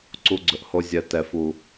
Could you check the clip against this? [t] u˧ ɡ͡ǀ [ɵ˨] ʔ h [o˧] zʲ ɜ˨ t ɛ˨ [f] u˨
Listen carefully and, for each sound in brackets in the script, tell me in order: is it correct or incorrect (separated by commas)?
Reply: incorrect, correct, correct, correct